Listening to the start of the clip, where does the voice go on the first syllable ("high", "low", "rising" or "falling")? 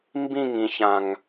falling